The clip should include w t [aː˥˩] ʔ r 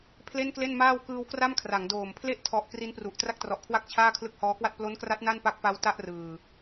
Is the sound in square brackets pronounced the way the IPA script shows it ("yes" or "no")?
no